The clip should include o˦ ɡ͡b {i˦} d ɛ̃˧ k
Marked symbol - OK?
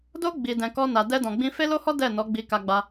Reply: no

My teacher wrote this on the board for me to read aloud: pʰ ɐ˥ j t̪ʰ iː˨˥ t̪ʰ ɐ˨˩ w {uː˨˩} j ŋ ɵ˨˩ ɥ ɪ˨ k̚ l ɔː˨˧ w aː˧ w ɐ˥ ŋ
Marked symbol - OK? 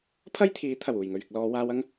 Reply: yes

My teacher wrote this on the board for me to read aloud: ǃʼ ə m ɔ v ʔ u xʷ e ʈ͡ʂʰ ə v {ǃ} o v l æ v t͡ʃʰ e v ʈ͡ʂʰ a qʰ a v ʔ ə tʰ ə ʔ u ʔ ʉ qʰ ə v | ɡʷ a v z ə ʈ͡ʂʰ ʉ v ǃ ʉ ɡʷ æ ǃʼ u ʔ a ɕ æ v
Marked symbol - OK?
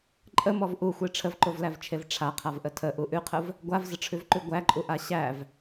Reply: yes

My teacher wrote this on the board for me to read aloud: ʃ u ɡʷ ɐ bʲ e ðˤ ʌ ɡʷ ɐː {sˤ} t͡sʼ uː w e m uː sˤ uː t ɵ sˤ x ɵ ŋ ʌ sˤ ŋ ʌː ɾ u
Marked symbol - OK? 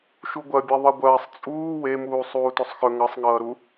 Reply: yes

